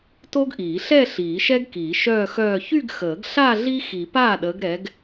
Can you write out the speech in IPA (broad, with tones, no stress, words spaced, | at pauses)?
to˦˥ɡʔiː˨˩˦ ɬɛ˥˧ɬiː˨˩˦ ʃɛ˦˥ɡkiː˨˩˦ ʃœː˥˧xœː˥˧ çy˥˧ɡxəː˨˩˦ɡɬa˥˧ ɮi˦˥xi˨˩˦ paː˥˩ɗəː˨˦ɡɾɛ˨˦ɡ